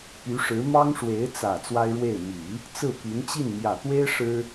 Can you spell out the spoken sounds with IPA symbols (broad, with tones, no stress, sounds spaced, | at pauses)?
p y˧˥ ʂ ɻ̩˧˥ m ɑ˥ ŋ ʂ w e˧˥ ɪ̯ t͡s ä˨˩ t͡s w a˥ ɪ̯ ɻ w e˥˩ ɪ̯ m i˨˩˦ | t͡s ɹ̩˥˩ p y˧˥ n t͡ɕ i˥˩ n m j ä˨˩ t̪ w e˥ ɪ̯ ʂ ɻ̩˥